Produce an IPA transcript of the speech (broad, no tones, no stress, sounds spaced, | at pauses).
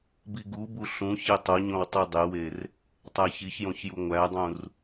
b i ɡ u b u ɬ ũ ç e tˤ o ɲ õ w tˤ i dˤ e w e r | tˤ æ ç i ç j õ ç j u ŋʷ æ dˤ ũ r